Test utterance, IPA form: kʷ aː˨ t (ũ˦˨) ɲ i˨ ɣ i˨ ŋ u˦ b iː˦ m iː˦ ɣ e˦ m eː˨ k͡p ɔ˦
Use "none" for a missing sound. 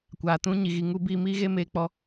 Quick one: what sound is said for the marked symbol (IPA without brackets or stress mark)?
ũ˦